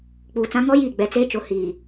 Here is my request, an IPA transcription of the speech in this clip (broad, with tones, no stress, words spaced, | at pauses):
k͡puː˨t͡sã˦ ŋɔ˦jiː˦˨ ɡ͡bɛ˨t͡seː˦t͡ʃʊ˨˦ hiː˨